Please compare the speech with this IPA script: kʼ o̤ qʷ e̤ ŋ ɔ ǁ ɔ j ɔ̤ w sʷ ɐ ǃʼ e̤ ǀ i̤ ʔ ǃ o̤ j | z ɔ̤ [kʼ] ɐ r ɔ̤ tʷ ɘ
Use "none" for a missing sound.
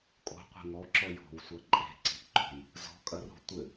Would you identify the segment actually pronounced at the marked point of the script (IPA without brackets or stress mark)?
kʼ